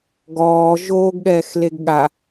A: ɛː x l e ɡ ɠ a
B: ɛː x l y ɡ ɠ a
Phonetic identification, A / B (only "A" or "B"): A